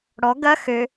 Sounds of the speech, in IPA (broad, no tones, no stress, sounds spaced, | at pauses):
ɽ ɔ ɡ ɐ x ø